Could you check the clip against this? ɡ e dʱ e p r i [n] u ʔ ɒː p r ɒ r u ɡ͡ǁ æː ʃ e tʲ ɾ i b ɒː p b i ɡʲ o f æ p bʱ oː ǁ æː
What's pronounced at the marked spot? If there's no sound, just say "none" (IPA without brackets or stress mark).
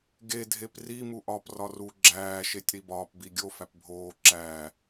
m